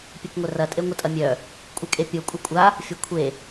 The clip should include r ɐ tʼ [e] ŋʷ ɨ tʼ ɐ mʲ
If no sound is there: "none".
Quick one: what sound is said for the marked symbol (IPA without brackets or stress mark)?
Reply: e